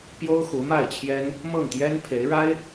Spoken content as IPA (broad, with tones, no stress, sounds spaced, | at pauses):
p j o˥ ʊ̯ x u˧˥ m a˥˩ ɪ̯ t͡ɕʰ j ɛ˥ n | m ɤ˥˩ ŋ t̪ j ɛ˥ n pʰ e˧˥ ɪ̯ ɻ a˥ ɪ̯